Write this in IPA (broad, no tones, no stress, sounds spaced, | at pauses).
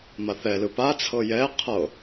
m a θ ɛ l ɯ p a t͡sʰ ɤ j ɛ qʰ ɤ